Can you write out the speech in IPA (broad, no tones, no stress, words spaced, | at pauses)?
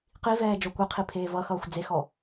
qivɛː d͡ʒɔkʷeqʰi pʰeːvʌxʌːxʷ d͡zexɔ